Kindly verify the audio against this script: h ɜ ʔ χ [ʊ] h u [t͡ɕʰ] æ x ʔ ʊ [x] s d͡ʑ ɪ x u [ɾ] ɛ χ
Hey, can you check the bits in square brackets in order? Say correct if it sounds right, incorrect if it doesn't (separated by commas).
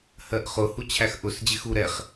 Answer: correct, correct, incorrect, correct